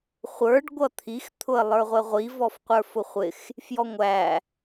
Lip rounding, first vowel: unrounded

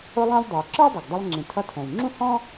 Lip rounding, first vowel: rounded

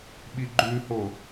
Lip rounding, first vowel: unrounded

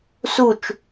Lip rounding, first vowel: rounded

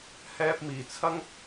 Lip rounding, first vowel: unrounded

